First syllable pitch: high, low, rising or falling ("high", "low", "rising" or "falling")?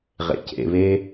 low